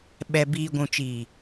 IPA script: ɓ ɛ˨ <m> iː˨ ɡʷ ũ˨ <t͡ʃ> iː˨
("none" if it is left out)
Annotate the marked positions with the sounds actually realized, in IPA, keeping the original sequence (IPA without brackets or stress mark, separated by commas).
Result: b, t͡ʃ